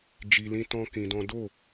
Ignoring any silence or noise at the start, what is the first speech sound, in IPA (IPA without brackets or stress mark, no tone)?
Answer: d͡ʒ